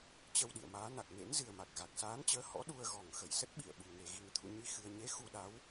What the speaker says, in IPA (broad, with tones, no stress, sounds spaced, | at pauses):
t͡ɕ ə˧ w ɗ ḭ˧˨ ə̯ m aː˨˦ n a˨˩ k̚ n ḛ˧˥ n z ɨ˨˩ ə̯ m a˨˩ k̚ ɣ a˨˩ k̚ s aː˨˦ n t͡ɕ əː˨˦ h ɔ̰˧˥ ɗ u˧ ə̯ ɣ ɔ˨˩ ŋ x ə˧˩ j s ə˦˥ t̚ ɓ ḭ˧˨ ə̯ ɓ u˨˩ ŋ e˨˩ ɣ i˨˩ ŋ t̪ʰ ṵ˧˨ ɲ i˧ x ɨ˧ ə̯ ɲ e˨˦ x u˧ ɗ a˨˦ w